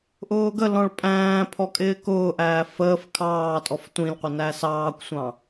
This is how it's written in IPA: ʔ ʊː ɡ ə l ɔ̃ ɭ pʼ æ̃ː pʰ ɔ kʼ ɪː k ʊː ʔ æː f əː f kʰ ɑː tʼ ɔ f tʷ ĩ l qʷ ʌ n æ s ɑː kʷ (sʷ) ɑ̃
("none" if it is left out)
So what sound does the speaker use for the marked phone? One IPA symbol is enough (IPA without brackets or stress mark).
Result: sʷ